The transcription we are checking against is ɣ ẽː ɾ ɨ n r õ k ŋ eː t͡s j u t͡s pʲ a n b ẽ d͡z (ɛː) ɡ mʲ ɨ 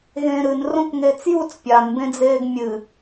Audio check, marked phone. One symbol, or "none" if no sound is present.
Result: eː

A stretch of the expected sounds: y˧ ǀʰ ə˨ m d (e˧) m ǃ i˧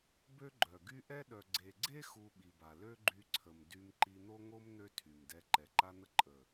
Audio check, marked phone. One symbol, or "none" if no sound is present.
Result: y˧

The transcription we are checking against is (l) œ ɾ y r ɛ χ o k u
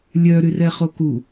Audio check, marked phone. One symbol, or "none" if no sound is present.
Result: lʲ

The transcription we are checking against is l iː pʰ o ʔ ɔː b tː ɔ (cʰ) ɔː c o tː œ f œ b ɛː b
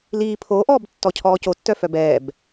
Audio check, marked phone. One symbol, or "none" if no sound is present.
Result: cʰ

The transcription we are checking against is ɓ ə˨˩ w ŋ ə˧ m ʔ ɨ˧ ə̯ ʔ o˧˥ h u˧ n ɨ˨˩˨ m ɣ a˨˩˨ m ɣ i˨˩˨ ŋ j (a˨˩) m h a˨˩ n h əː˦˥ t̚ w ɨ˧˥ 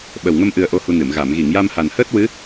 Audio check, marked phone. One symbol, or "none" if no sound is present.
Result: a˧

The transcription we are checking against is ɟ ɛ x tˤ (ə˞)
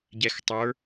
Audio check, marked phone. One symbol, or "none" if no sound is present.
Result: ə˞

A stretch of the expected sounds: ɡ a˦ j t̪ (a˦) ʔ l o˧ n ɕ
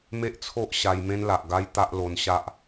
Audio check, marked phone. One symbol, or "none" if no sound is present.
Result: a˦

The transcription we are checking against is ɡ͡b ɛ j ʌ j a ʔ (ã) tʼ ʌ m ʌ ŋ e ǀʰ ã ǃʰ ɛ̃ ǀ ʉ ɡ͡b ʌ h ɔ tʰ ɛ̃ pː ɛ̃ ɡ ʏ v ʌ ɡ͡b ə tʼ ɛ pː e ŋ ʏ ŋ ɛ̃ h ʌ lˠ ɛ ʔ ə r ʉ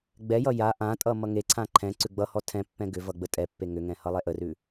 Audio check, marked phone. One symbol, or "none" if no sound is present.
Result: ã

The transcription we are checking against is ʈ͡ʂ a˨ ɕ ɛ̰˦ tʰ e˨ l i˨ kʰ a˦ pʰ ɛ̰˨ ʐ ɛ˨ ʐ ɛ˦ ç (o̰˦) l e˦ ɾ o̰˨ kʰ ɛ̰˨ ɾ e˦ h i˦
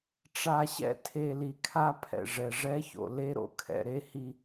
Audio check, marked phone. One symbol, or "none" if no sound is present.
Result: o̰˨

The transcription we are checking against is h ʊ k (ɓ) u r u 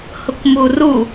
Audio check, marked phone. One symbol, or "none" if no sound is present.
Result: m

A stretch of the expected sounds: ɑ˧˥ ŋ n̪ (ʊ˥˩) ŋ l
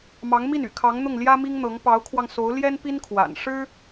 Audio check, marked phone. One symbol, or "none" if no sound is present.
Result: ʊ˥˩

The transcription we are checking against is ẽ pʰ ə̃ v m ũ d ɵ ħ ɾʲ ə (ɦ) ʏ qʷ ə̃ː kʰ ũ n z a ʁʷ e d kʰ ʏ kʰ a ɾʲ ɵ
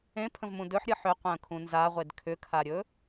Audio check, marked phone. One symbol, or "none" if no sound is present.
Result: ħ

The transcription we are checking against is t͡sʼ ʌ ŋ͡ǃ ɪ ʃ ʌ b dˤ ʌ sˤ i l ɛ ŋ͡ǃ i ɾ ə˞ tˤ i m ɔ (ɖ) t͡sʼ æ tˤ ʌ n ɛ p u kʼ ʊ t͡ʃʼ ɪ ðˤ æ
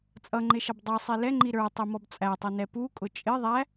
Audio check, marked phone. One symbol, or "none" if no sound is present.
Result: b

